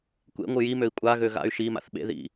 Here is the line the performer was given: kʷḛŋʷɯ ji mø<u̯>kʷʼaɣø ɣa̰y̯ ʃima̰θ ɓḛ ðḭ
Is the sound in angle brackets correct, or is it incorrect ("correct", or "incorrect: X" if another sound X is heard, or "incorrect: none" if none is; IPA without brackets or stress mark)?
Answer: incorrect: i̯